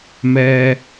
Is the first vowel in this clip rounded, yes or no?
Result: no